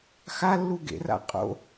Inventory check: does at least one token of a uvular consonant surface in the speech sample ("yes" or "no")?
yes